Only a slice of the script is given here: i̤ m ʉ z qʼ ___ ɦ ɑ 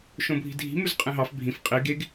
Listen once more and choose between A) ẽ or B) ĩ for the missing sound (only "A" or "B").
A